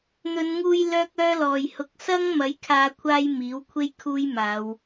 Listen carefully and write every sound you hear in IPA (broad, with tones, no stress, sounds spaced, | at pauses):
n̪ ɵ˨˧ n ŋ uː˧ j l œː˥ k̚ œː˥ l ɔː˨ j h ʊ˧ k̚ s ɐ˥ ŋ m ɐ˨˥ j kʰ aː˧ kʷʰ aː˥ j m iː˨˥ w kʷʰ e˥ j kʰ uː˥ j m aː˨˧ w